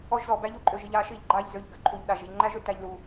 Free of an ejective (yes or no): no